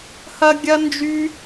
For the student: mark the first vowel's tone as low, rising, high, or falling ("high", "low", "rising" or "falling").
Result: high